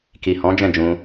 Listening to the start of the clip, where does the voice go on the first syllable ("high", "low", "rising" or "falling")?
low